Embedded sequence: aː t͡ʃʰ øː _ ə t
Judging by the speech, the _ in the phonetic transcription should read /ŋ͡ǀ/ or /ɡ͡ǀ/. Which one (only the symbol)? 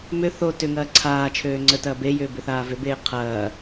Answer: ŋ͡ǀ